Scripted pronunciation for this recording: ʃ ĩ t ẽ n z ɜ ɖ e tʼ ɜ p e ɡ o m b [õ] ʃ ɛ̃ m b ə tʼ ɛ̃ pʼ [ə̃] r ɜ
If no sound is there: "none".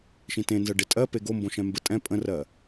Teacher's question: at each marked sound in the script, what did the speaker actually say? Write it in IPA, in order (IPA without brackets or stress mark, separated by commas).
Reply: õ, ə̃